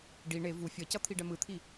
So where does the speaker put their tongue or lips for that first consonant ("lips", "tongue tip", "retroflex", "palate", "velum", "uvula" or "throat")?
retroflex